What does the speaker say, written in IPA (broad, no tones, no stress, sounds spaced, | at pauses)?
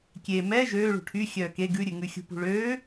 kʲ e m ɛ ʒ øː ɭ ṳ ʈʰ y xʲ œː k e ɡ ʉ ɾʲ ʉ ŋ ʉ xʲ ṳ p ṳ ɭ øː